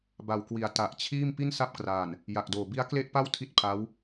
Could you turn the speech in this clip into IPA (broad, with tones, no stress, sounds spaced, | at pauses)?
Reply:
b a˨˩ w k w i˩˦ a̯ t a˨˩ ʔ t͡ɕʰ iː˥˩ m p i˥˩ n s a˦˥ p̚ k r aː˨˩ n | j a˨˩ k̚ d oː˨˩ b i˦˥ a̯ k l e˥˩ ʔ p a˥˩ w tʰ i˥˩ t̚ pʰ a˦˥ w